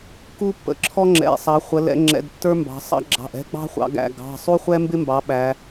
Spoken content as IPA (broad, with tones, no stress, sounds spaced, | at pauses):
k u˦ pː ə̰˩˧˩ ǁʰ ɔ˦ ŋ͡ǁ ɛ̰˩˧˩ sˤ ɑ˩˧ χʷ ə˩˧ l ɛ̰˩˧ ŋ͡ǁ ɛ̰˩˧˩ d tː ə˞˦ m b ɑ̤˩˧ sˤ ɑ̰˦ ɡ͡ǁ ɑ̤˩˧˩ ʔ ɛ̤˦ ɡ͡b ɑ̤˦ χʷ ɑ̰˩˧ ɡ æ̰˩˧˩ ɡ ɑ̤˩˧˩ sˤ u˦ χʷ ɛ˦ m b ɪ˦ m b ɑ˩˧ ɓ æ˩˧